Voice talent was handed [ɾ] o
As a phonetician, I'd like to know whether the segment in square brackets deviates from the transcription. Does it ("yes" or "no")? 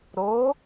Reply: no